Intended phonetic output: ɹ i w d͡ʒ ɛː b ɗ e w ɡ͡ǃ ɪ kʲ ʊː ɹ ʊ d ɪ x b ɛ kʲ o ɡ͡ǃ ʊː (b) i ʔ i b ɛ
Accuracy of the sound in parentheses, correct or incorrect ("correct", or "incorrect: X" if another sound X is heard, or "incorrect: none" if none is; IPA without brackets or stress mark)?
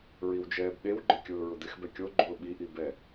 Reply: incorrect: ɓ